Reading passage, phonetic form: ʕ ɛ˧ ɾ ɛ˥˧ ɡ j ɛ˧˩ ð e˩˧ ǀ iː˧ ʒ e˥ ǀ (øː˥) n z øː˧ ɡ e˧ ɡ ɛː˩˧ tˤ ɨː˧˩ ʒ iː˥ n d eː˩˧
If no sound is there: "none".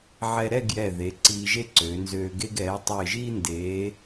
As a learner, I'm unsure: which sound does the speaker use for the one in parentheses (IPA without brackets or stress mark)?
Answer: øː˩˧